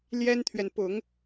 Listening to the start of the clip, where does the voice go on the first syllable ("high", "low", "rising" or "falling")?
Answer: high